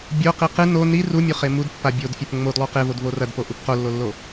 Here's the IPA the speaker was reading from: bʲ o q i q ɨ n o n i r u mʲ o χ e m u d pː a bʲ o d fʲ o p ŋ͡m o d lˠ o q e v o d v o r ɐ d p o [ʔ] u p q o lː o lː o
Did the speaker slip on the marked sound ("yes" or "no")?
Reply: no